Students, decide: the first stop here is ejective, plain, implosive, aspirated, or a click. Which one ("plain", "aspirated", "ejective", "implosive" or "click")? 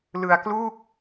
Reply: plain